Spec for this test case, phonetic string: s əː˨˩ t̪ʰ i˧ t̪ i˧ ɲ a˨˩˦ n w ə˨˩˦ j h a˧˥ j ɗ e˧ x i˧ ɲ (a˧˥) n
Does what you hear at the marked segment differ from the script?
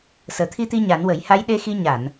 yes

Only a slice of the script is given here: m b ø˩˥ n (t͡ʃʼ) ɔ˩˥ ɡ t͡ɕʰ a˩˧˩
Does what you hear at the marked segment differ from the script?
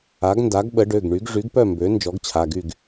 yes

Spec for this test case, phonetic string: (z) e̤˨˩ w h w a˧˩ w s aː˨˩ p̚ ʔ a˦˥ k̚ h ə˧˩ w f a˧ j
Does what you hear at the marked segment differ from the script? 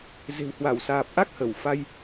no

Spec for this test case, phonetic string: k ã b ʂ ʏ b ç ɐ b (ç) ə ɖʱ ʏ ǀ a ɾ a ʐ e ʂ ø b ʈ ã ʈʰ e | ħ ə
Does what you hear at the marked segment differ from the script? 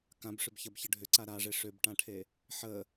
no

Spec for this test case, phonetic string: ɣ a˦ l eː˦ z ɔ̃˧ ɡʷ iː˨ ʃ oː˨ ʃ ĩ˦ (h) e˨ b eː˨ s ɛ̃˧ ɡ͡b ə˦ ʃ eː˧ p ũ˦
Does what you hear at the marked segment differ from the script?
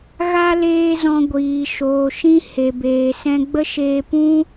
no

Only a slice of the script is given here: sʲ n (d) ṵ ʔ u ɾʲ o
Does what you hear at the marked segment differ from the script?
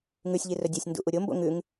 no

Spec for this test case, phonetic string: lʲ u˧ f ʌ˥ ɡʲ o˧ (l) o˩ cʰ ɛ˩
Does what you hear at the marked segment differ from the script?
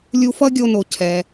yes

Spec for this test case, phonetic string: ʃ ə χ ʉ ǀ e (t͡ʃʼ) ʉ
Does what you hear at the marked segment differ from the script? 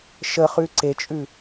no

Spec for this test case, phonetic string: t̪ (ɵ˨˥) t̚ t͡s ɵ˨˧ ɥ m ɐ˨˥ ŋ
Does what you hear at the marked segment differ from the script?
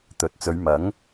no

